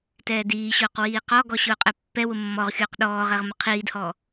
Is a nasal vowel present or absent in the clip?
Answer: absent